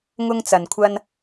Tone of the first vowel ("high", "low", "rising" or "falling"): high